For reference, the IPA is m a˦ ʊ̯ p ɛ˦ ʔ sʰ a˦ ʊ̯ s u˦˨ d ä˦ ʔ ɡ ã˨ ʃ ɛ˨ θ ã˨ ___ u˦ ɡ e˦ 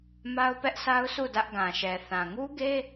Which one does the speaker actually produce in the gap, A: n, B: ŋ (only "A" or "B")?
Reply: B